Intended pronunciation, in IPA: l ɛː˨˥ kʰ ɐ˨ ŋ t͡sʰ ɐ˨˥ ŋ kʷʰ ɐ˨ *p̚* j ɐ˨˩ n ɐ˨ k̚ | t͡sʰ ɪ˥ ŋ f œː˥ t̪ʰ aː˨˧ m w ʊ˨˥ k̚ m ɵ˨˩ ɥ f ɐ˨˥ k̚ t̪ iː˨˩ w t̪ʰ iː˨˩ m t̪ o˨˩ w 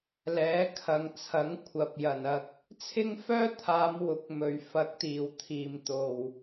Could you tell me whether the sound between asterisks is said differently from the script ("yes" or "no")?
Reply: no